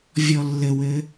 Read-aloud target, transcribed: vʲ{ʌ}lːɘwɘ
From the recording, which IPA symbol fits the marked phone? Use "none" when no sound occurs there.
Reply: ɔ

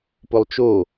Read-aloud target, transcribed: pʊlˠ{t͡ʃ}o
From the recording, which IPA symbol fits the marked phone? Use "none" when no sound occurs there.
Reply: t͡ʃ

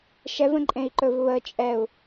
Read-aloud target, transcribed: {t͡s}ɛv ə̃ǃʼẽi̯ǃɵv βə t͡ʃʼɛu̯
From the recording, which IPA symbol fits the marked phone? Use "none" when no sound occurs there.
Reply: ʃ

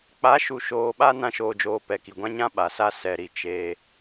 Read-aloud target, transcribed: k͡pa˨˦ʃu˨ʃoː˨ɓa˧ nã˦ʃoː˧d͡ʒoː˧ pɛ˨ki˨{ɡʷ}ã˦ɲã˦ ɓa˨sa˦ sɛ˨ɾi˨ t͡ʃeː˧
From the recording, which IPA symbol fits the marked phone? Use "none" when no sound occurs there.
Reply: ɡʷ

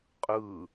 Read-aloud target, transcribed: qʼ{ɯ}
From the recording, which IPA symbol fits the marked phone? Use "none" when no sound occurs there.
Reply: ɯ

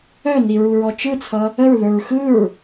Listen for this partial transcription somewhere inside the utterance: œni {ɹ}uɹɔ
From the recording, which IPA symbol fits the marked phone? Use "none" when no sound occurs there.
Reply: ɹ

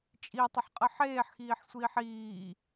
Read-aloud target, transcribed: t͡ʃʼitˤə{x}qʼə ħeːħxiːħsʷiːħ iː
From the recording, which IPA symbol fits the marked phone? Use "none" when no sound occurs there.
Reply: ħ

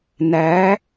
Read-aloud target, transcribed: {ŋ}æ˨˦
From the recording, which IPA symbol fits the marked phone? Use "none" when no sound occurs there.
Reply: n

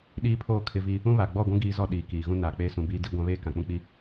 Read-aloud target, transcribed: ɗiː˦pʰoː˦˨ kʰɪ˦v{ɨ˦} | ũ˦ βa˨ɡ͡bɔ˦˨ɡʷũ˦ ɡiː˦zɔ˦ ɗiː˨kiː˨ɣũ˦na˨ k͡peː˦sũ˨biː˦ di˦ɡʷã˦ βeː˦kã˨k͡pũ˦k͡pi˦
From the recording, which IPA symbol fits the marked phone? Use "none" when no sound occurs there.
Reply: i˦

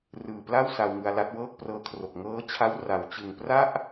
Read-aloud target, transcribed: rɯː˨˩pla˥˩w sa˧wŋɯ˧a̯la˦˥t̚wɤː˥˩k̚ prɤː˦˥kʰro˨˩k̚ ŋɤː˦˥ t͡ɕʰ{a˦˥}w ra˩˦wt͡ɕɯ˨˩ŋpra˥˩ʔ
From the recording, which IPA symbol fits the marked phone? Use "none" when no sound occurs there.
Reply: a˦˥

